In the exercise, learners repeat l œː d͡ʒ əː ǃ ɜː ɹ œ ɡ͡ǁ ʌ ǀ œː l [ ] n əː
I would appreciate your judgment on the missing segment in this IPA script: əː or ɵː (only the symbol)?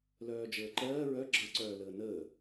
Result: əː